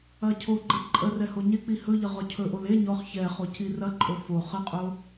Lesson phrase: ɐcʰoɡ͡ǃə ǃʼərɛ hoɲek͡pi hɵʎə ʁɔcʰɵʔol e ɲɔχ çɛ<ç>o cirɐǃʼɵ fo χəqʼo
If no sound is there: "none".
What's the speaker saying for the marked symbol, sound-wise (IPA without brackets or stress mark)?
χ